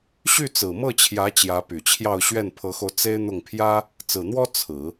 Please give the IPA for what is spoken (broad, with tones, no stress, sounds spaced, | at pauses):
ɕ y˥˩ t͡s ɹ̩˨˩ m ɤ˥˩ t͡ɕʰ j ä˧˥ t͡ɕ j ä˧˥ p y˨˩ t͡ɕʰ j ɑ˥˧ ʊ̯ ɕ ɥ ɛ˥˩ n pʰ ɤ˧˥ x o˧ ʊ̯ t͡s e˥ ɪ̯ n̪ ʊ˥˩ ŋ pʰ j ä˥ | t͡s ɹ̩˨˩ n̪ w ɔ˥ t͡sʰ ɹ̩˨˩˦